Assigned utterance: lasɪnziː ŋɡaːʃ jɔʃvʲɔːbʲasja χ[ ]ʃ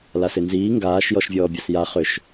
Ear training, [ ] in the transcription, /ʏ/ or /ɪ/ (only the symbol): ʏ